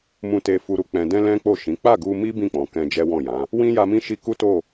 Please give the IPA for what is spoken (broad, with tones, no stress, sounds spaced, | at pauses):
m ũ˨ t e˨ f u˨ ɾ u˨ k͡p ɛ̃˨ d ɛ̃˧ l ɛ̃˦ k͡p o˦˨ ʃ ĩ˨˦ k͡p a˦˨ ɡ u˧ m i˦ b ĩ˦˨ k͡p ɔ̃˨ k ɛ̃˧ d͡ʒ ɛ˦ w ɔ̃˦˨ j ã˨˦ | w ĩ˦ j a˧ m ĩ˦ ʃ i˦ k u˦ t o˦˨